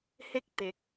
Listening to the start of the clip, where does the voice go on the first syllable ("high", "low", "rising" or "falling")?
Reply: high